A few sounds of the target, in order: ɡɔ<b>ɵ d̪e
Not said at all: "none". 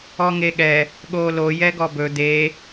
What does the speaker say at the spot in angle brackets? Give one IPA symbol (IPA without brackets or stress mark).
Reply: b